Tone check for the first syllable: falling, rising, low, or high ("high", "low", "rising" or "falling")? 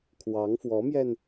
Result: rising